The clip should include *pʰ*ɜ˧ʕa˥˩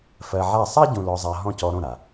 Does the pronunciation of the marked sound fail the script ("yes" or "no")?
yes